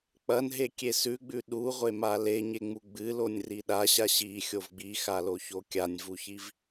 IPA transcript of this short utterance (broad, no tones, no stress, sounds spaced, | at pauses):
k͡p ɐ n ɦ e kʲ e s ʉ ɡ͡b ʉ ɗ u ʁʷ e m a l e ɲ e ŋ͡m u ɡ͡b ɨ l o nʲ r i ɗ a ɕ a ɕ i xʲ o v ɡ͡b i x a l o ç o kʲ a nʲ v u ç i v